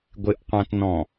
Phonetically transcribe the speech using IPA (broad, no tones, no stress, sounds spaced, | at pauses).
ɡʷ ɪ ʔ qʷ ã t n ɔ̃